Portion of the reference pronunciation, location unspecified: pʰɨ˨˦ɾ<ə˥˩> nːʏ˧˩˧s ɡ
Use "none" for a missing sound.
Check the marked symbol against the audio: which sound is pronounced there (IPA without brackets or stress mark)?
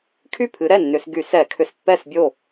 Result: ɛ˥˩